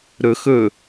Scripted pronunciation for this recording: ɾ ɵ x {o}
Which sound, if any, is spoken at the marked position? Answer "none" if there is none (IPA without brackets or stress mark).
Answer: ɵ